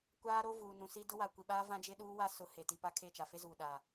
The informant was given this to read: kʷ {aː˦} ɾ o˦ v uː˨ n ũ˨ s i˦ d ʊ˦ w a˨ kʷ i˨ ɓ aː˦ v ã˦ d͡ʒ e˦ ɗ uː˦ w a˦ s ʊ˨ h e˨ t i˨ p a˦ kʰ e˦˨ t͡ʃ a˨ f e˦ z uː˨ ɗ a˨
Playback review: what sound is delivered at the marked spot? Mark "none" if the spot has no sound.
aː˦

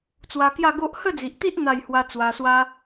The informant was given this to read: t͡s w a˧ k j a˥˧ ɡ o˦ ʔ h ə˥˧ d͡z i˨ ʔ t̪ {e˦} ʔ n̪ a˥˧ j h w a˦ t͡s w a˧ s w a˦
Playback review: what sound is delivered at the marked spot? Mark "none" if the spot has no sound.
i˦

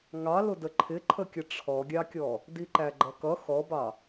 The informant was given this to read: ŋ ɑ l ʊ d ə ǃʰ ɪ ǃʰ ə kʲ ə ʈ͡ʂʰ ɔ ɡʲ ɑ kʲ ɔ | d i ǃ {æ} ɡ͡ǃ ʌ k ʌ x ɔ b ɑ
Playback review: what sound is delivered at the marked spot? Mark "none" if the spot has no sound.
æ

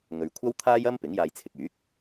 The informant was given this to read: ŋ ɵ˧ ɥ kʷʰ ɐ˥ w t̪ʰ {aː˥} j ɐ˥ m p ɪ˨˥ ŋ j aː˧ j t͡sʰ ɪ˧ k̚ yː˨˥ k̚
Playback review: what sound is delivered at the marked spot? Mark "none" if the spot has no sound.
aː˥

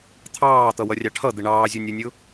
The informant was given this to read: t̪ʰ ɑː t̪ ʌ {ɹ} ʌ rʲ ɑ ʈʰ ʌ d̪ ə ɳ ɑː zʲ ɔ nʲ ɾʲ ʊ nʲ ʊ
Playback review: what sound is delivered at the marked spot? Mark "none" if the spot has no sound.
w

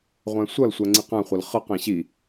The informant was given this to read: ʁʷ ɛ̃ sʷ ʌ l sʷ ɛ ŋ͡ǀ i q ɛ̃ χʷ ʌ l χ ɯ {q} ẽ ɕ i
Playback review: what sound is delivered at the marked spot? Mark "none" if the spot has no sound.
q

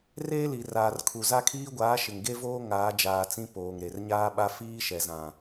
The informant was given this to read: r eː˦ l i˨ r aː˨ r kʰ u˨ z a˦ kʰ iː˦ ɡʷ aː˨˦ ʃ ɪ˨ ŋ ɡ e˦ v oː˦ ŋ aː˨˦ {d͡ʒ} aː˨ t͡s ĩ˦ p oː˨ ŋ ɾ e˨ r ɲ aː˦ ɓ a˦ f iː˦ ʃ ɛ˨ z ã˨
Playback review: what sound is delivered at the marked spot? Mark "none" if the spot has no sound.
d͡ʒ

